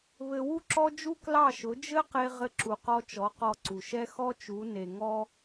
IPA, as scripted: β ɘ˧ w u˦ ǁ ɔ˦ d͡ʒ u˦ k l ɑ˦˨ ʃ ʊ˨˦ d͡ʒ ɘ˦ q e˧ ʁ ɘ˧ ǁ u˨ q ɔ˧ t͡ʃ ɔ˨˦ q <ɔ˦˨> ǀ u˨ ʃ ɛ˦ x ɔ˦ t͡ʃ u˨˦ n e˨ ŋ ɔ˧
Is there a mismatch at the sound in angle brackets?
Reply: yes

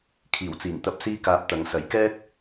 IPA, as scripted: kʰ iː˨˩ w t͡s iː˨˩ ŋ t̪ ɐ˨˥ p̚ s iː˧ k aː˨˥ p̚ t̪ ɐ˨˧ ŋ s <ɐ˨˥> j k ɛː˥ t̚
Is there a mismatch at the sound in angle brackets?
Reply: no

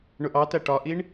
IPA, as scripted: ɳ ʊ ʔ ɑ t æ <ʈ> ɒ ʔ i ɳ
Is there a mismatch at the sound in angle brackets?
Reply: no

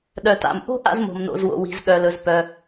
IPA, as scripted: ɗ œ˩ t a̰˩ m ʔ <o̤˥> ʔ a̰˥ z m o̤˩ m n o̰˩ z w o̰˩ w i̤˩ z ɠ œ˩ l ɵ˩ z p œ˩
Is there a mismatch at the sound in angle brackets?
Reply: no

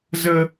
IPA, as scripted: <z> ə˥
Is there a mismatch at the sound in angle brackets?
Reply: no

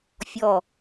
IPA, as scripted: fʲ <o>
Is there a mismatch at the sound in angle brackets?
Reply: yes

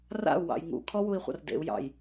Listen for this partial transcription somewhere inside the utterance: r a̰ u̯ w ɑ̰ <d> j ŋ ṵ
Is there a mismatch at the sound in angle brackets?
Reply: yes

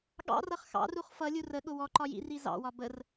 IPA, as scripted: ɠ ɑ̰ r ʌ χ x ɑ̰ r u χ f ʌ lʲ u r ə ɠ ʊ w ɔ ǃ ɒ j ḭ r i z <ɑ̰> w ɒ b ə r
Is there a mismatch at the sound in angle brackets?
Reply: no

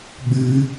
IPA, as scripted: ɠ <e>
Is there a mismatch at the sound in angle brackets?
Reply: yes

